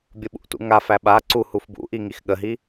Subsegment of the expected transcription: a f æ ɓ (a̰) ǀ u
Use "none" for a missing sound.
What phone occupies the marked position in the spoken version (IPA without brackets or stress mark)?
a